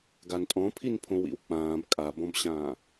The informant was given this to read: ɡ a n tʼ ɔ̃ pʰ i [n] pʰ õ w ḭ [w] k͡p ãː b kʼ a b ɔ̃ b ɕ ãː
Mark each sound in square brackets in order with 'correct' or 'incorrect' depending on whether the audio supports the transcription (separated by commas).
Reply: correct, correct